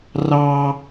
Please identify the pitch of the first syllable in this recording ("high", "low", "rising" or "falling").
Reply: low